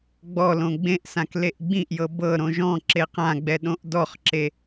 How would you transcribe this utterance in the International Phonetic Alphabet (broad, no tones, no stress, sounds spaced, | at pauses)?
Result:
ɡ͡b ɔ l õ ɡ͡b ẽ ʔ s ã k l e ʔ ɡ͡b ĩ ʔ j ɤ b ɤ ɾ õ ʒ ɔ̃ ǁ e q ã ɡ͡b ɛ ɗ õ ʔ d ɔ χ ǁ e